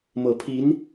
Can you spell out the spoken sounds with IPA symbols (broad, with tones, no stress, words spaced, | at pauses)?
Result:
mɤ˨˩pʰi˧˥n